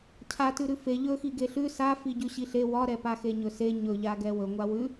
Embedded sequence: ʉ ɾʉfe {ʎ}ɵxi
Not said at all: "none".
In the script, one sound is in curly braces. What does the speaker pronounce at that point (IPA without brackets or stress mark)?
ʎ